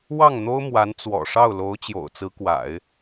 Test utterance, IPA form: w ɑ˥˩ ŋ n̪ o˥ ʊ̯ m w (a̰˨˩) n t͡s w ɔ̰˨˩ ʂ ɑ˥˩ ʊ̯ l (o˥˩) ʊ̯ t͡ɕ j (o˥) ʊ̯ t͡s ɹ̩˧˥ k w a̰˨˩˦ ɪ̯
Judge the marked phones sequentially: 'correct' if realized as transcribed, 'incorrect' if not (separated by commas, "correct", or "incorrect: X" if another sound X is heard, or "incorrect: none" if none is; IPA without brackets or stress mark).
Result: incorrect: a˧˥, incorrect: o˧˥, incorrect: o̰˨˩